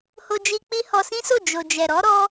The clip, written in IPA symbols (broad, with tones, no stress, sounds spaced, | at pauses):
h o˧ d͡ʒ i˧ k͡p i˦ h ɔ˧ s ĩ˦ s o˦˨ d͡ʒ o˨ d͡ʒ ɛ˨ ɾ ɔ˨˦ ɾ ɔ˦